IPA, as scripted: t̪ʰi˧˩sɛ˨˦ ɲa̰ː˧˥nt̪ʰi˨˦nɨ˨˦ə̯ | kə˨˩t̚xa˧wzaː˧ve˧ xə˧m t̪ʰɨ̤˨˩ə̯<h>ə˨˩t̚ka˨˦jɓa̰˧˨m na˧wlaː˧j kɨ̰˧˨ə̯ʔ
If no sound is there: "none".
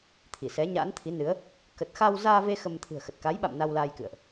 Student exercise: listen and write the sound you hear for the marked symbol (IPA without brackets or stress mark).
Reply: x